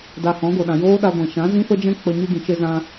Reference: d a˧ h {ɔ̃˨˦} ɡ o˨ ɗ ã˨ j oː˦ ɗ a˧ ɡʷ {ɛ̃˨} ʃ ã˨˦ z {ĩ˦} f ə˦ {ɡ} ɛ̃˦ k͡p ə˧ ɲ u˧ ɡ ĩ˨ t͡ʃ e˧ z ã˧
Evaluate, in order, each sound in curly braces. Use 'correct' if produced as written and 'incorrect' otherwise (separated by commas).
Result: correct, correct, correct, incorrect